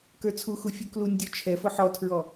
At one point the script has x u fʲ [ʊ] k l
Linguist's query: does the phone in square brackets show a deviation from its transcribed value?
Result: yes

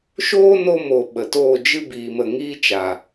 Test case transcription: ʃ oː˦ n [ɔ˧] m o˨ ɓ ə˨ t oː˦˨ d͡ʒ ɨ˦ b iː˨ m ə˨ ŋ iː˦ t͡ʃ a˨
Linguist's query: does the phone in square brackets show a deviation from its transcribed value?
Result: yes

